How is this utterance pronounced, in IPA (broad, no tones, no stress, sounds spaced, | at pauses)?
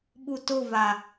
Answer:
ɓ u t ʊ v a